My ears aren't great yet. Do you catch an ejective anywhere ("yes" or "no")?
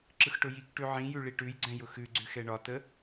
no